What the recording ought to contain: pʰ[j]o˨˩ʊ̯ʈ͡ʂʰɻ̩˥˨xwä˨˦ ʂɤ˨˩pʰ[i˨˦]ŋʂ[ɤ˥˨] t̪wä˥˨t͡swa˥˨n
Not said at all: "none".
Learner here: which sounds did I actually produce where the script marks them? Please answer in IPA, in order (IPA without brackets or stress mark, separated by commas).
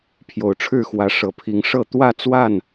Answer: j, i˨˦, ɤ˥˨